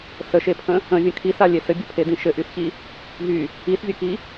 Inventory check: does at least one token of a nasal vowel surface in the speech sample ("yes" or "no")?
yes